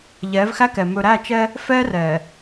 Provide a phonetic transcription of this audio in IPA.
ʎɛː˨˦vxæ˦kɛ˨ mɵ˨ɾæ˦˨t͡ʃɛ˦ | fɛː˦rɛː˨

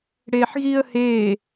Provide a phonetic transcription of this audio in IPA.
ɽeːħɣiːə̯heː

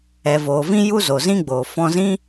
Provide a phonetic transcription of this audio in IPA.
ɛ˨voː˨vĩ˦ ju˦zo˨zĩ˦ɡ͡boː˨ fɔ̃˧zĩ˦

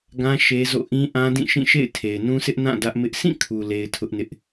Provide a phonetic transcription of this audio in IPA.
ɡã˦ ʃe˦zo̰˦˨ ʔĩ˦ʔã˦ dĩ˦˨ʃĩ˦˨ ʃḛ˦˨ɪ̯tʰe˨ɪ̯nũ˦sʰɪ˦ʔ nã˦˨ dä˦ʔmɪ˦ʔ sʰĩ˦˨kʰu˨ le˦ɪ̯tʰʊ˦ʔnɪ˦ʔ

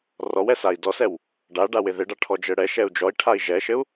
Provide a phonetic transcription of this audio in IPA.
rɔwɛsai̯ dɔsɛw | ɖa ɖawɪðɪɖa ʈʰɔd͡ʒɘɽɛ ʃɛu̯d͡ʒɔi̯ ʈʰai̯ʒɛʃɘu̯

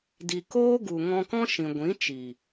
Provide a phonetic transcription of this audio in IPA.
di˨koː˦ ɡu˨ ŋɔ̃˧kɔ̃˦ ʃĩ˨ɡʷĩ˨˦t͡ʃi˨

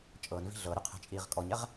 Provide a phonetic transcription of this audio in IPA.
t͡ʃʼɤnvi̤ ɮɤɾyqʰɛ̤t͡ʃʼiːʁ kʼɔɲɛʁ

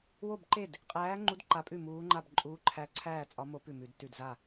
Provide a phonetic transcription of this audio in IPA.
wo˥˨bǃe˥˨d | qʼæː˧˥ŋ͡ǃu˧˥d ǃa˧˥pʼʉ˥˨muː˧˥ŋ͡ǃa˥˨b ǃʼuː˧˥ǃʰæ˧˥ ǀʰæː˥˨t͡sʼɒ˧˥mo˧˥ pʉ˥˨mʉ˧˥dtʉ˥˨d za˥˨

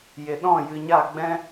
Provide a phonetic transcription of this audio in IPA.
je˨ɗɔ̃˦˨ jɨ˨ɲa˦˨ɡ͡bɛ̃˦

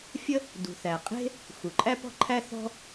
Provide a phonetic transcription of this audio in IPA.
fʲə˥ | dṳ˩θæ˩qʼe̤˥ | xu˩ǃʼæ˥pɔ̤˥ǃʰæ˥ θɔ̤˥

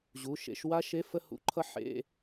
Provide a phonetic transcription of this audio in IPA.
ʑu˩˧˩ ʃḛ˧˥˧ʃ wa˦˥ʃe˧˥˧ fə˥˧hṵ˦˥ǃʰʌ˦˥ ħḛ˧˥˧

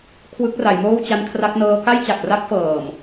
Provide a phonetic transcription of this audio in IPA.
kʰwɯ˦˥k̚ra˩˦jmoː˥˩w t͡ɕa˦˥nkʰra˦˥k̚nɤː˦˥ ka˥˩jt͡ɕa˨˩k̚ ra˦˥k̚fɤː˨˩m

